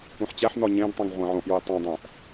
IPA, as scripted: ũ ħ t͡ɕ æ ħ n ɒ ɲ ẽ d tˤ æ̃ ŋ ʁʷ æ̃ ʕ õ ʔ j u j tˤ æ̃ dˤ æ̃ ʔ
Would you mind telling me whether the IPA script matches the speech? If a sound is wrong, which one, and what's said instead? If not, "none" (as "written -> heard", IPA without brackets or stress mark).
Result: none